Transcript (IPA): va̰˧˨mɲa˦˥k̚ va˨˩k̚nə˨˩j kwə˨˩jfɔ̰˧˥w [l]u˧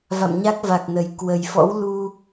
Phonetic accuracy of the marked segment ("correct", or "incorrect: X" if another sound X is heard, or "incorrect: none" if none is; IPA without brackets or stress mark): correct